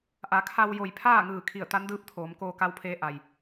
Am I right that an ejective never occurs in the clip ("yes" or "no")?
yes